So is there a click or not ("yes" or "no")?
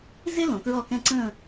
yes